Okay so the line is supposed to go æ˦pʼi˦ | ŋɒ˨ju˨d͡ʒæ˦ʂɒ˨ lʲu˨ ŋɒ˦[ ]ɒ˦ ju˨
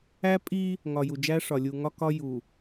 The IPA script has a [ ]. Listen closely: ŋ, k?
k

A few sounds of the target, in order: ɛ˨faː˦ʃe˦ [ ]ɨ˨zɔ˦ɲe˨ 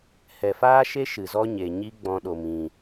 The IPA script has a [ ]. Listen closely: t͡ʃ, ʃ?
ʃ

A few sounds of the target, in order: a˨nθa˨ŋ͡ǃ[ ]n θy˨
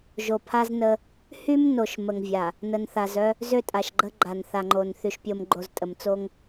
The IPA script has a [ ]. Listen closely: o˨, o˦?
o˨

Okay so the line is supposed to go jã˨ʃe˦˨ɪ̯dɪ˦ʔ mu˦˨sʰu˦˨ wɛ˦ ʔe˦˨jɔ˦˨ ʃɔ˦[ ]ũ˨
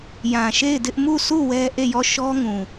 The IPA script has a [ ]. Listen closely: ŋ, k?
ŋ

